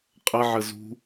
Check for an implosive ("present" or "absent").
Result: absent